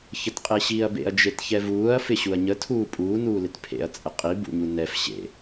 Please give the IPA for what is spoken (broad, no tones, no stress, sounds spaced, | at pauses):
ç ə t qʼ e ɕ iː ɐ̯ b ḛ ɐ̯ d͡ʒ e t ç ɛ v uː ɐ̯ f ɪ ɕ u ɐ̯ ɲ ə tʰ uː pʼ uː n uː l ɪ t pʰ ḛ ɐ̯ t͡sʼ ə qʼ i b ṵ ɲ u n ɛ f ɕ ḛ